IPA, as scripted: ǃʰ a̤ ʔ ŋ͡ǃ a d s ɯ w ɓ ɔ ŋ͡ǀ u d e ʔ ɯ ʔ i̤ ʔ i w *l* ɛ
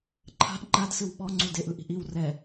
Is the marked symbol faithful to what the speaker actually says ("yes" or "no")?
no